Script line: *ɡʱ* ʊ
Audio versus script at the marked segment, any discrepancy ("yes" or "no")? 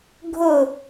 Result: no